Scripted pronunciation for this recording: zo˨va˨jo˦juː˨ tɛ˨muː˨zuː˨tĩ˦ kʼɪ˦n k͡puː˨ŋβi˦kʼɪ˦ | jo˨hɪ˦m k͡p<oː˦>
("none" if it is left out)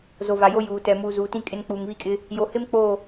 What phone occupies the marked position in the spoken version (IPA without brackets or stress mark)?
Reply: oː˦˨